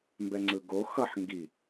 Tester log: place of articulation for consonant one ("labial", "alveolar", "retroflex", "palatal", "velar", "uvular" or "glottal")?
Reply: labial